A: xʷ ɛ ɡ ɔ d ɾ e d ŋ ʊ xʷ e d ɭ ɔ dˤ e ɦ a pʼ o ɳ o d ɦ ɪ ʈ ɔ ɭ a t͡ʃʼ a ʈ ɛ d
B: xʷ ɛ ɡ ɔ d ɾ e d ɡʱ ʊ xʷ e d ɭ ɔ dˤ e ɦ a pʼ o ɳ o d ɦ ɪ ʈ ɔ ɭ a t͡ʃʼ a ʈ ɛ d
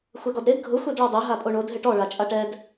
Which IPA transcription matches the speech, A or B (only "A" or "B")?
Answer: B